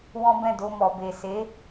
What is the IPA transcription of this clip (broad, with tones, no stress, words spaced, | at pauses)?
wɔ̃˦bɛ̃˦˨do˧mɔ˨ be˨se˨˦